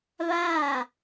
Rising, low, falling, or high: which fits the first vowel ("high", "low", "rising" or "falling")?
falling